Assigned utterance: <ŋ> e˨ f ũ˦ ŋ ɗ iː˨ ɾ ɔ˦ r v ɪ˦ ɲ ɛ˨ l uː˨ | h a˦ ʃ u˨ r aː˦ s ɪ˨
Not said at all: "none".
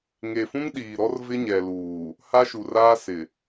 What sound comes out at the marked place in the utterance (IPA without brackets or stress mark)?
ŋ